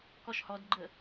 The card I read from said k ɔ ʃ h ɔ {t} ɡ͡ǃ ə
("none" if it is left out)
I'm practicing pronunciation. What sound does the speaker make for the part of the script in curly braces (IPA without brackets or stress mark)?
d